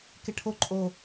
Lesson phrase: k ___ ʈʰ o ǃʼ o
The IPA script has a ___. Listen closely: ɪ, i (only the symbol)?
ɪ